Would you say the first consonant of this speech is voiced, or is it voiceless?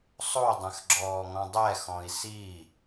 voiceless